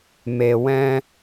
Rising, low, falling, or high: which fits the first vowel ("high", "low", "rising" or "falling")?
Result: low